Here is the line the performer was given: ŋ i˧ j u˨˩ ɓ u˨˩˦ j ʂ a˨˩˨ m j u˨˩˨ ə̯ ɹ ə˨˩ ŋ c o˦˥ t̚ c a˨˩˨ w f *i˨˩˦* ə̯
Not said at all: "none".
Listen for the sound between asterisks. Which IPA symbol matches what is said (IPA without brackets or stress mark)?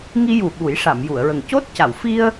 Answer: i˧